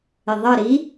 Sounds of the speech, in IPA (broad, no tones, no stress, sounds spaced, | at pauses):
ɪ ðˤ ʌ ɾ i